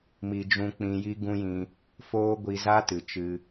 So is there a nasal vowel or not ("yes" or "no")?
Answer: yes